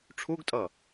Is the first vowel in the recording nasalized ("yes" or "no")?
no